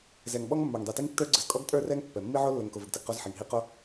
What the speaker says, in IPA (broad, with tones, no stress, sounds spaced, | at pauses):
z ɛ˨ ŋ ɓ ɔ˦ ŋ mː ə˞˨ ŋ dˤ i˨ t i˦ ŋ tː ə˞˦ ɡ͡ǀ ə˨ z kʼ ɔ˦ ɡ tʼ ə˞˦˨ r ɛ˦ ŋ pː ɛ˨ mː i˦ ʕ o˦ lː ə˨ ŋ k o˨ v ə˨ ɡ t ə˨ ɡ q o˦ z ħ i˨ ŋ ɦ i˦ q o˦